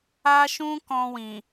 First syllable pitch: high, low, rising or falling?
high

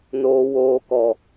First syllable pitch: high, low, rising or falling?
low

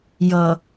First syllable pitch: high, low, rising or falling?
low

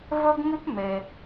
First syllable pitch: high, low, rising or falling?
high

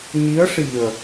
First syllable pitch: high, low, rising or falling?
rising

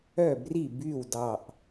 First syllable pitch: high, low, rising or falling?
falling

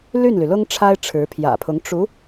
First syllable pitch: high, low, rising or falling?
falling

